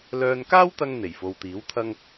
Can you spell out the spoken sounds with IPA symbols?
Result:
l œː˧ n k aː˥ w t̪ ɐ˧ ŋ n̪ e˨˩ j f o˨ w t̪ iː˨˥ w t̪ʰ ɐ˥ ŋ

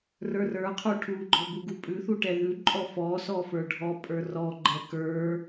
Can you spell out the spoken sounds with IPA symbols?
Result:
r ə˞ r ə˞ qʰ u ʈʰ u ɡ͡ǃ ɔ b u ɡ u pʼ ʉ θ u ʈ ɛ ð ʉ ǃʼ ɔ f ɔ s ɔ f ə˞ ɖʱ ɔ pʼ ə˞ r ɔ ɡ͡ǃ ɛ k ə˞

